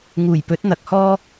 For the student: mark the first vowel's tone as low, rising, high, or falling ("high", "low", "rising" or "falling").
low